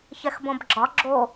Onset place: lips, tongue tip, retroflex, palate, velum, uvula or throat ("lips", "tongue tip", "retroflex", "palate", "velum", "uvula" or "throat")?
palate